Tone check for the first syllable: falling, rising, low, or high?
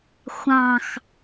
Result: falling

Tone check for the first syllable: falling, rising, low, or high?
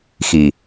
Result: low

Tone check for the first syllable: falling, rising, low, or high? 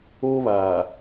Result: high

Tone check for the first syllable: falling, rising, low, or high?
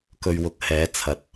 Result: low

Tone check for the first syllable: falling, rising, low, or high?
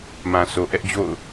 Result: low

